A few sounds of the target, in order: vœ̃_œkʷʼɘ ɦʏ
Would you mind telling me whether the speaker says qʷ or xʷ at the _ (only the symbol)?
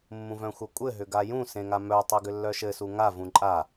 xʷ